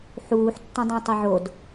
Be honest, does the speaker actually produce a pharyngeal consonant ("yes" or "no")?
yes